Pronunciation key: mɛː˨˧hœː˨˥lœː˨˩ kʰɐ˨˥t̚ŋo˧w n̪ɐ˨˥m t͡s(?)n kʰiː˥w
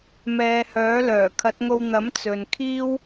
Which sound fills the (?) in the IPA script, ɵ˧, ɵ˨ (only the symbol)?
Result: ɵ˨